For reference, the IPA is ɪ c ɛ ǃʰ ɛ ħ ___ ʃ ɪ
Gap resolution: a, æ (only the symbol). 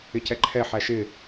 æ